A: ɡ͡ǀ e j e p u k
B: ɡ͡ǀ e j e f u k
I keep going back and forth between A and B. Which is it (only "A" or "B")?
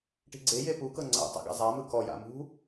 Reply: A